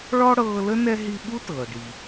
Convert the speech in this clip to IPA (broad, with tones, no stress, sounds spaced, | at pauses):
ɭ ɔ˥ ɽ ɤː˦ l ə˥ n ɛ˥ ɦ i˦ ɓ u˥ t ɤː˩ ɖ i˩